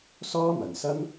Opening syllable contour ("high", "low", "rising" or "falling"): high